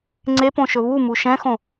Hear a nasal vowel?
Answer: yes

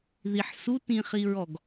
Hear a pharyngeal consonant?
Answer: yes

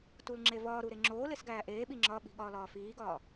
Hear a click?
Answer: yes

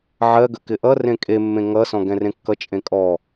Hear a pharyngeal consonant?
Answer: yes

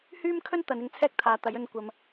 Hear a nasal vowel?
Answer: no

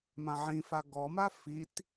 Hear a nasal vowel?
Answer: yes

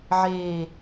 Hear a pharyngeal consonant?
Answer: yes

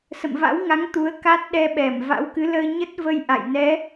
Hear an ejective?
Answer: no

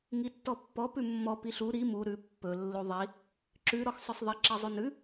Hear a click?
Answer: yes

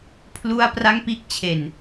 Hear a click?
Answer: no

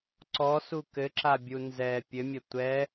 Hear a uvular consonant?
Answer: no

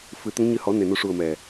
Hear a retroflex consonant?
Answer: yes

